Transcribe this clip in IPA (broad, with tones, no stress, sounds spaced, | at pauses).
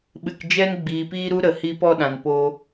ɓ ɨ˨ k d͡ʒ ɛ˧ n ɡ͡b iː˨ p iː˧ ɾ u˧ ɾ ə˨ h i˧ p ɔ˦˨ ɗ ã˨ n p o˧